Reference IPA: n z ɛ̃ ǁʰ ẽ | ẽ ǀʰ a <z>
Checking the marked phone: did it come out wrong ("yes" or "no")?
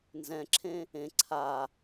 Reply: yes